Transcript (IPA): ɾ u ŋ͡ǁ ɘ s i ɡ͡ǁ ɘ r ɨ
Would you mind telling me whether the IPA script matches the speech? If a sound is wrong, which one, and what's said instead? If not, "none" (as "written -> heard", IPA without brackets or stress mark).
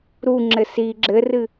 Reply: none